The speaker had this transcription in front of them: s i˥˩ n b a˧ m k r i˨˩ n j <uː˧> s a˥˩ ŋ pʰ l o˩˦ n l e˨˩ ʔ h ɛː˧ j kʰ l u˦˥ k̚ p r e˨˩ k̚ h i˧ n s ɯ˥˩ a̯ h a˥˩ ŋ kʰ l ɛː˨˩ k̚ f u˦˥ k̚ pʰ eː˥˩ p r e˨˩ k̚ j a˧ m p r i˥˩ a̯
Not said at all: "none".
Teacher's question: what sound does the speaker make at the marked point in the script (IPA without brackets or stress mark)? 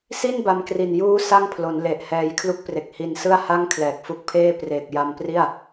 uː˦˥